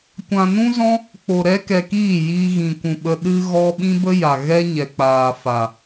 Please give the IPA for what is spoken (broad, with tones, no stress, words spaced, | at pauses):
kʷã˨nũ˦zɔ̃˦ | k͡po˨ ɾɛ˦kɛ˧kiː˦˨ jiː˧ɣĩ˨kʷũ˨ɓə˧ ɗɨ˧ ɣɔ˦ ɓĩ˦bə˦ja˨ ɣɛ˦ ɲɛ˨k͡paː˨ fa˨